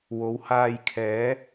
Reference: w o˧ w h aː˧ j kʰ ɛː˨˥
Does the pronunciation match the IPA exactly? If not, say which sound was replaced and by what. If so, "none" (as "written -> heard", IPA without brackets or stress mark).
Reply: o˧ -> o˨˥